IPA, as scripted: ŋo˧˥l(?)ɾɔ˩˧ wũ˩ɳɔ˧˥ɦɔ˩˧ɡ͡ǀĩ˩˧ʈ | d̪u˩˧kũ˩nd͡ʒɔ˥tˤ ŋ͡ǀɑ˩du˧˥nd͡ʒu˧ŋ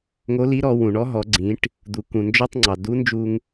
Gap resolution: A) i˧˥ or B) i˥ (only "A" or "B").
A